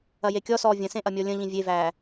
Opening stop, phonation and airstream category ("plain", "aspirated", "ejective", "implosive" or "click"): plain